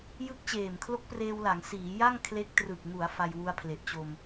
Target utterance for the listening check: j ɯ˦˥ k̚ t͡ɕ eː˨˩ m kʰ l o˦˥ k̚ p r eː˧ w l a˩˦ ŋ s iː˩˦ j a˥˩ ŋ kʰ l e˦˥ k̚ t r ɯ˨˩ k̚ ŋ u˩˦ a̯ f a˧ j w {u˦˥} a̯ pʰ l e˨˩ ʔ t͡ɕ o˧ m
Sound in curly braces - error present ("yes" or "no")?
no